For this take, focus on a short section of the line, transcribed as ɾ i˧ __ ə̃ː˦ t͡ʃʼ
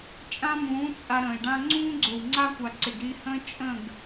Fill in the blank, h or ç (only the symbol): h